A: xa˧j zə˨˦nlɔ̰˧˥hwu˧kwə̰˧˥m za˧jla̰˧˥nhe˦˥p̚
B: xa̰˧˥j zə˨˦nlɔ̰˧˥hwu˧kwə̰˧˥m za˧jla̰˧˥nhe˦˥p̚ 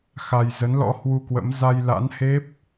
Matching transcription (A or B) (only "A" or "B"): A